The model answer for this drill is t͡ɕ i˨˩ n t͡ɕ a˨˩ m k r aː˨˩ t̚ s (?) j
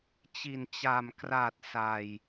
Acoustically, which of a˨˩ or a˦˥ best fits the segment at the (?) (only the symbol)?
a˨˩